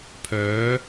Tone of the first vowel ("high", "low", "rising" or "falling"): rising